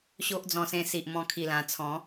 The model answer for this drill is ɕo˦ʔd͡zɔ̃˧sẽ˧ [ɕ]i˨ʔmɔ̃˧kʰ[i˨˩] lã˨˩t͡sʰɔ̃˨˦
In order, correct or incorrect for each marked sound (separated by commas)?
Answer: incorrect, correct